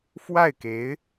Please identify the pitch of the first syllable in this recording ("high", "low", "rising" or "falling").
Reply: falling